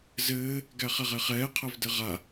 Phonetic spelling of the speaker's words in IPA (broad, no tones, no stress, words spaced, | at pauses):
zɘː | ɡæχɛʁɛχɛː qʰævdɘʁa